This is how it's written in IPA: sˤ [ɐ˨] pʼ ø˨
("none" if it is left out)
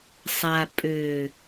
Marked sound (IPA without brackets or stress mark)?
a˨